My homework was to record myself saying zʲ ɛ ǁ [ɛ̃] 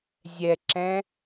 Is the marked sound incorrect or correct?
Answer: correct